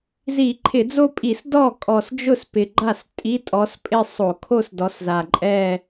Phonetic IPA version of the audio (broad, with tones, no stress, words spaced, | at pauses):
zi˧˩˧ǃʰɪ˧˩˧d͡zo˥˧pʼi˧˩˧s dɔ˥˩kʼɔ˨˩sd͡ʒʊ˥˩s pɪ˨˩ɡ͡ǃa˥˩s tʼi˧˥˧tʼɔ˨˦spʼɪ˥˧ sˤo˧˩˧kʰo˥˧sdɔ˨˦sza˨˩ ǃʼɛ˥˧